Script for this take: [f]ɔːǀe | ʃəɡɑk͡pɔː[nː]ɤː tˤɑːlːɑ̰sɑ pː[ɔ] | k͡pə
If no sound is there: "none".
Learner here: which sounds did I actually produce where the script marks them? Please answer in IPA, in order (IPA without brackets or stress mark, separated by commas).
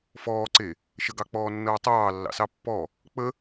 f, nː, ɔ